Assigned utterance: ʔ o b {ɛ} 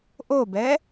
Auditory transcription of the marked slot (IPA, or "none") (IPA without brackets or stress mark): ɛ